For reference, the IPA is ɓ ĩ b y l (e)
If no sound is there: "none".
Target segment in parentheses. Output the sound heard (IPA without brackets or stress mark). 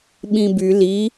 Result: i